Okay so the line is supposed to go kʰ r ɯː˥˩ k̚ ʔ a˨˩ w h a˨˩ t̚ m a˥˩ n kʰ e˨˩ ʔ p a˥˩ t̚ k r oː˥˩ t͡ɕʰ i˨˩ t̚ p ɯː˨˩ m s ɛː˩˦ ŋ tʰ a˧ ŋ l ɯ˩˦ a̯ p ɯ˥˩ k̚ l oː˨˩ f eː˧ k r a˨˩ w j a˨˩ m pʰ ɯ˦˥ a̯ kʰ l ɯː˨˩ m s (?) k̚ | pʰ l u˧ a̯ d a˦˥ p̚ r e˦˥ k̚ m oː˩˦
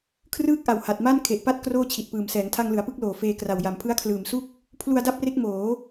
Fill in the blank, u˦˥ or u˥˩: u˥˩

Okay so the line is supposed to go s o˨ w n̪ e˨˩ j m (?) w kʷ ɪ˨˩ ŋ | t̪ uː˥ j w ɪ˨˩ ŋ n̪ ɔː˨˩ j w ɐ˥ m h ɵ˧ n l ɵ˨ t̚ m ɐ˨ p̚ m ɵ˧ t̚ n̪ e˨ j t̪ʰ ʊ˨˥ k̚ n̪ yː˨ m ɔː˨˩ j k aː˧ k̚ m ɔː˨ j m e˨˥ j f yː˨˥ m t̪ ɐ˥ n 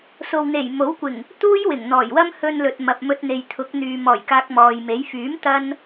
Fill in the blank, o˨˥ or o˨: o˨˥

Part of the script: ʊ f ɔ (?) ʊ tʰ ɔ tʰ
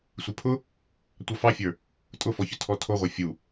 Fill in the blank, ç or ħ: ç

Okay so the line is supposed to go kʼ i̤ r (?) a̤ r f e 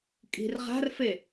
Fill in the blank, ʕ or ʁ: ʁ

